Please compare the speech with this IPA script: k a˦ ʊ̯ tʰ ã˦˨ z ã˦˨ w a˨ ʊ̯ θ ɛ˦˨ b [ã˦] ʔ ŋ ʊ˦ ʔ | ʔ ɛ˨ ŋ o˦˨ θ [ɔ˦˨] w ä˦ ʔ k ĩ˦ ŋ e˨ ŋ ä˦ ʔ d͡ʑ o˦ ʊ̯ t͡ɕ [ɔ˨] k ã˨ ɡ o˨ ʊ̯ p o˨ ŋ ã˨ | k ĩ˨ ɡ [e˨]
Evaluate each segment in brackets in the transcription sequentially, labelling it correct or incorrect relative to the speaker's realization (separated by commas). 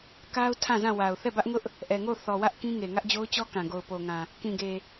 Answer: incorrect, incorrect, incorrect, correct